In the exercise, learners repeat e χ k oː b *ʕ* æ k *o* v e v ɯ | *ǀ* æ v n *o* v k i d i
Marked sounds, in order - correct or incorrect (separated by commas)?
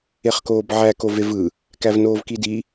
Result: correct, correct, incorrect, incorrect